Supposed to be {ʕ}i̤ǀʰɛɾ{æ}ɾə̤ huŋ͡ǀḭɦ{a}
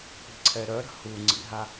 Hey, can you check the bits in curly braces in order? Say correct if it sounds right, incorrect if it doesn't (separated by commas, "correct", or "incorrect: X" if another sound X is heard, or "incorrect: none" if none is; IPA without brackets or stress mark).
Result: incorrect: ʔ, incorrect: œ, correct